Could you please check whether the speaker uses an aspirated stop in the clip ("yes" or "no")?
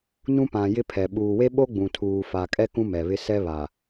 yes